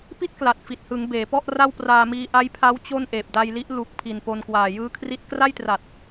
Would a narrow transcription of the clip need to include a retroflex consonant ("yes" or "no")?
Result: no